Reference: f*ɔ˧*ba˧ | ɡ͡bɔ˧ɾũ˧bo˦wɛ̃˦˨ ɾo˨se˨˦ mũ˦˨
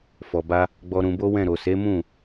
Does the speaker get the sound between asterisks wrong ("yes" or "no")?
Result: yes